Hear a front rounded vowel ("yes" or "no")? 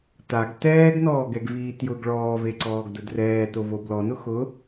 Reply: no